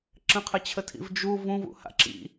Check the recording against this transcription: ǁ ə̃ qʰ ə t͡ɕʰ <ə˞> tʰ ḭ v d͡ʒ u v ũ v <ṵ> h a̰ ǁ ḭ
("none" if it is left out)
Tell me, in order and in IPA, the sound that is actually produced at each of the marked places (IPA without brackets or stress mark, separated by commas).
ə, ṵ